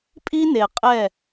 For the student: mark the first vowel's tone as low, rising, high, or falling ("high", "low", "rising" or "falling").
high